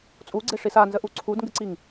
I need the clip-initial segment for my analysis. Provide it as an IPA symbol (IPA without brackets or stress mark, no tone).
t͡sʼ